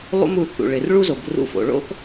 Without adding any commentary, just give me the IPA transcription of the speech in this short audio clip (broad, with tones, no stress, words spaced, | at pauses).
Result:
lˠṵ˥mu˨ θṵ˩ɭɪ˩r ɭu˥zo˩b rṵ˦fo̰˩ ɭo̰˥k